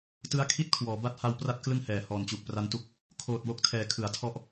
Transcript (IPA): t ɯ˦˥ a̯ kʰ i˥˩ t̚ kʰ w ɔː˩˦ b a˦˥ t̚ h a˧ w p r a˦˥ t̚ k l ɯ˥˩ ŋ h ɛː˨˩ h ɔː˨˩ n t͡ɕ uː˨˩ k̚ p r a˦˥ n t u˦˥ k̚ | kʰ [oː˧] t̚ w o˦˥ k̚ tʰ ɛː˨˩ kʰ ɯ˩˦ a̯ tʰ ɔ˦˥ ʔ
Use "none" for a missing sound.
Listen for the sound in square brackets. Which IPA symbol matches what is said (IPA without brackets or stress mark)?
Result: oː˨˩